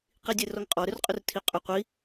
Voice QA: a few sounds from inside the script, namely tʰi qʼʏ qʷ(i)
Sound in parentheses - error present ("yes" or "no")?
no